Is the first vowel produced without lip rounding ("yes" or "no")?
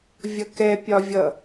yes